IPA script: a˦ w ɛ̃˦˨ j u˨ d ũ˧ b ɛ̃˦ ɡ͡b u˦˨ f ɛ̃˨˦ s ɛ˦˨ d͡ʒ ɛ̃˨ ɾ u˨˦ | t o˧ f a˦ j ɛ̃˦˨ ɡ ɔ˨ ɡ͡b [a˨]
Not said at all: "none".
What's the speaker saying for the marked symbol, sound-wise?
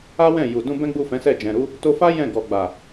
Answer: a˨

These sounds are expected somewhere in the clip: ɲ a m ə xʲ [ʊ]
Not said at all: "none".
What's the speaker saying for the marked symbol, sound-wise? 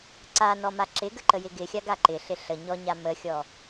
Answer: ɔ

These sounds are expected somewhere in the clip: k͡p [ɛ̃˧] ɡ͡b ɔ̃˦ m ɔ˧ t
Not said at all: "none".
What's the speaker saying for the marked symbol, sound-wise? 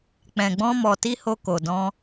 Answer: ɛ̃˧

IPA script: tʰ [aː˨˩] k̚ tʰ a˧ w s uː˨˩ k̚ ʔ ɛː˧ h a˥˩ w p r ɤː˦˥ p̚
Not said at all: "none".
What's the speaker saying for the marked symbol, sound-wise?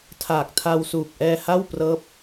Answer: aː˨˩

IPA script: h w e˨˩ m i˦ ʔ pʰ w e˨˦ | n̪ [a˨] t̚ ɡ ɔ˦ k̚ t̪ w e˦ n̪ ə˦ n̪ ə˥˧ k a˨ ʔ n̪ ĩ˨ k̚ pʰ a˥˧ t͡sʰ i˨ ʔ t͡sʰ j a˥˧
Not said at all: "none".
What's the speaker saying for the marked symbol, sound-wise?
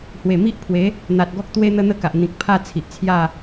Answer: a˨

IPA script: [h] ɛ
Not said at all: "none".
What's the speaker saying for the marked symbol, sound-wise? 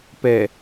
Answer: p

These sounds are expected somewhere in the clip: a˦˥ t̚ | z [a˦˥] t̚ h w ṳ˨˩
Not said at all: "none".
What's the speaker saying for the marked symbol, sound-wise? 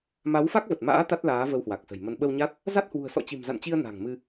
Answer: a˦˥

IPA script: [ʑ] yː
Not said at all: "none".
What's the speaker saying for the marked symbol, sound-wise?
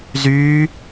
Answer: z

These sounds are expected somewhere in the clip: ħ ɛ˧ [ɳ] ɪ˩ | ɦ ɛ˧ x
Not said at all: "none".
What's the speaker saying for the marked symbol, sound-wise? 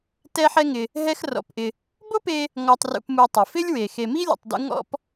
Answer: ŋ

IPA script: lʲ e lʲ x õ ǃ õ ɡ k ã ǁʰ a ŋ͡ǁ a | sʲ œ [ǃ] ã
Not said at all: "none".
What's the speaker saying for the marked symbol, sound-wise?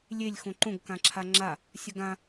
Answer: ɡ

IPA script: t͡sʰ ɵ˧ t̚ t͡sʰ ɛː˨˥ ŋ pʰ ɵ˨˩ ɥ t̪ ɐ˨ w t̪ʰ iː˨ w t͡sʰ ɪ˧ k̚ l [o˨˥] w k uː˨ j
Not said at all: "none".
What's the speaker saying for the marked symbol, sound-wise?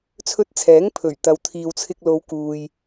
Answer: o˨˧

